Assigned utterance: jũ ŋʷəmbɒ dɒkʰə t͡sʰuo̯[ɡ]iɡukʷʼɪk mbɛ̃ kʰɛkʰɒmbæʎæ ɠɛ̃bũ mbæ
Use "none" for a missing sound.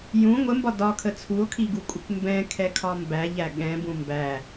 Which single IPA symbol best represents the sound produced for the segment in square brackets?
kʰ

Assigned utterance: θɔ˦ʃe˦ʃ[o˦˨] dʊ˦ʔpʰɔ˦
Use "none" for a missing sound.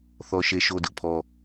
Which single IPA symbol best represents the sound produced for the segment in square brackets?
o˦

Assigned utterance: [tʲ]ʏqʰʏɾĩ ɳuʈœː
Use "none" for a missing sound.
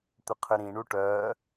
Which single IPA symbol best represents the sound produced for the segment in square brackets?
t̪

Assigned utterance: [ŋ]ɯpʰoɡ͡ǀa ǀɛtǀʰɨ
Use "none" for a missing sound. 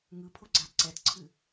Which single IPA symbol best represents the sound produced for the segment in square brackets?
ŋ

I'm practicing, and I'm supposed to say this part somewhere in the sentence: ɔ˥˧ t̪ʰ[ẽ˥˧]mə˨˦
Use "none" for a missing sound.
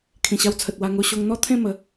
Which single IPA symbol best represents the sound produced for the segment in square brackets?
ẽ˥˧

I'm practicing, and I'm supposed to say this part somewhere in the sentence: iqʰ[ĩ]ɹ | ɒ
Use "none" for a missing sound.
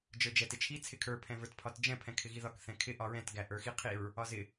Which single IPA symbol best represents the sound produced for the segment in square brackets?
i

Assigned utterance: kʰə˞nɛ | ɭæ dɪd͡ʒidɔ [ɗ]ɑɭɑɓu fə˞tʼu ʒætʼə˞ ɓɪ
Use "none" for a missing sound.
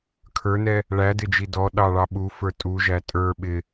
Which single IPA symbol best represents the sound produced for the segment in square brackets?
ɗ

